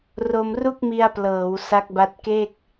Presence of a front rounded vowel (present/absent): absent